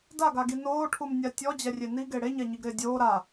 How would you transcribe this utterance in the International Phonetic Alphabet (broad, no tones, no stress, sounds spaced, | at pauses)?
d a ɡ a ɡ i n oː ʈʰ u m nʲ a tʲ ɔ d͡ʑ ɛ rʲ e n i ɡ e ɽ e ɲ a ɲ i ɡ ɾ ɪː dʲ oː ɾ a